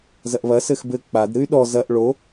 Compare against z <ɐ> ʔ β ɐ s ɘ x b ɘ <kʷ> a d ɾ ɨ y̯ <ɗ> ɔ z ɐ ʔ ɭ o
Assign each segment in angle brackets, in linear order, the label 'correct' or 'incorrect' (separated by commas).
correct, incorrect, correct